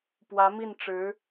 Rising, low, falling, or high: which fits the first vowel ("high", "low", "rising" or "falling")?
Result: rising